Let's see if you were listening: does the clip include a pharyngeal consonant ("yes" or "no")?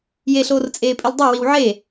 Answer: yes